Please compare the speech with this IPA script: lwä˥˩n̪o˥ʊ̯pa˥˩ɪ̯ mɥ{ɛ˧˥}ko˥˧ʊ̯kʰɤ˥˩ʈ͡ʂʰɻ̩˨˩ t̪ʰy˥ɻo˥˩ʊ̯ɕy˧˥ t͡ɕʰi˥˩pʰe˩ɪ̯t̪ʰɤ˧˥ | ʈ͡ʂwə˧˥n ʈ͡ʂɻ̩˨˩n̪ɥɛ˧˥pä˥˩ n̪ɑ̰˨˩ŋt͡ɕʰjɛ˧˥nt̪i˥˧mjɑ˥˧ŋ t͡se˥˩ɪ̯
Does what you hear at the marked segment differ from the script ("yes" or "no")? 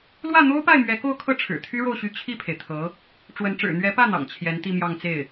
no